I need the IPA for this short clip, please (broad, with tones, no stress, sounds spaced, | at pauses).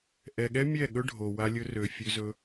ʔ ɛ˨ ɠ ɛ˦ mʲ ɛ˦˨ ɠ ɵ˦ ɖʱ o˨ w a˧ lʲ ɵ˧ r ø˨ fʲ ø˧ z ɵ˧